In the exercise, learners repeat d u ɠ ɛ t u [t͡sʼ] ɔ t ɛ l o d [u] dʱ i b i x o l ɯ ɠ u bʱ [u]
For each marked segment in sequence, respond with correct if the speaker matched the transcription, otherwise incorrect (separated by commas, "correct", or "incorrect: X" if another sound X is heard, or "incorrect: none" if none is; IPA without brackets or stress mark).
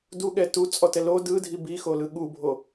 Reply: correct, incorrect: ɯ, incorrect: o